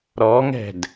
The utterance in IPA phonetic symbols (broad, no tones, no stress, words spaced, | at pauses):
ɾɔŋɛ̤d